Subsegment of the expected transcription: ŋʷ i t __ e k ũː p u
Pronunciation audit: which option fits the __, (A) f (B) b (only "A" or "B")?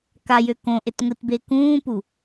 B